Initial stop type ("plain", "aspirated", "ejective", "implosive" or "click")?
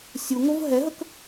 plain